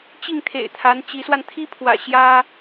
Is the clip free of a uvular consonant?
yes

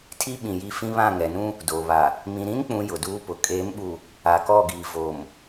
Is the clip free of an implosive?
no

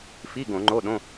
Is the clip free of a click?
no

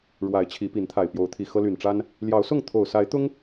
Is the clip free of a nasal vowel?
yes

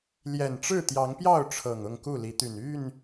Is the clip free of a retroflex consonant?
no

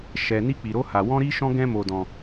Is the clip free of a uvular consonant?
yes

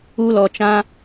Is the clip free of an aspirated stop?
yes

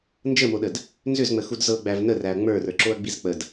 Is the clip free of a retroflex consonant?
yes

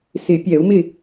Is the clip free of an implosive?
yes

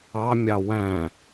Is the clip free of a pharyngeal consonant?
yes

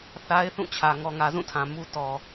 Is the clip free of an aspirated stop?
no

